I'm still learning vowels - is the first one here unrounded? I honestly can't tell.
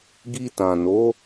yes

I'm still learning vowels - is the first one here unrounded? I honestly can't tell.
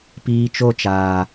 yes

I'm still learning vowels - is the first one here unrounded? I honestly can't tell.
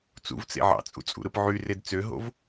no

